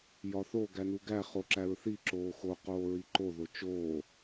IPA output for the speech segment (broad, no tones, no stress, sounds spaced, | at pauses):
j ɒ θ o ɡ æ n u ɡ æ χ o ǁ æ ɹ θ i ǁ oː x o q oː ɹ i ǃ o ð o t͡ʃ oː